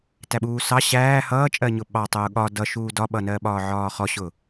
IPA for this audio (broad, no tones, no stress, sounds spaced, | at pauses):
t æ ɓ uː s ɑ ɕ æː h ʌː t͡ʃʼ ɜ ɲ ʊ ɓ ɑ tˤ ʊː ɠ ɒ d ʌ ʃ uː d ɒ ɓ ʌ n ɜ ɓ ɒː ʕ ɒː χ ɔ ɕ ʊ